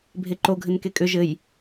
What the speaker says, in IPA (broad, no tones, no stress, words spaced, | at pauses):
bʱeǃoɡʱɘn kekʼʏ ʒɘj